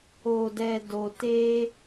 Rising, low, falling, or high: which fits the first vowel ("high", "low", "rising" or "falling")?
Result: low